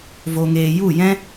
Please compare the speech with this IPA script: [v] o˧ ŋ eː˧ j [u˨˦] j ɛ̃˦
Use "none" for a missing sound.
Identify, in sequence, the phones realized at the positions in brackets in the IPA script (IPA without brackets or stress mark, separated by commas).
v, u˦˨